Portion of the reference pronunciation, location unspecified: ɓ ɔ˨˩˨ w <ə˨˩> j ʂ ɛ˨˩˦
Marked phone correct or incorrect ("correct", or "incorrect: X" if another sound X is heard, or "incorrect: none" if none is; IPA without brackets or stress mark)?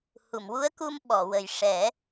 correct